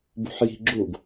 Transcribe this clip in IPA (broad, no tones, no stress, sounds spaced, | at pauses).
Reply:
b ṳ ħ j i̤ ɡ͡ǁ u ɡ